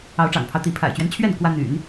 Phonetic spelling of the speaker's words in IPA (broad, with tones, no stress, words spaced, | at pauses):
ɑ˧˥ʊ̯ʈ͡ʂɑ̰˨˩ŋpʰɑ˦ʊ̯ t̪i˧˥ pʰa̰˨˩ɪ̯t͡ɕɥɛ˦nt͡ɕʰɥɛ˥˩n kwä˥ n̪y̰˨˩˦n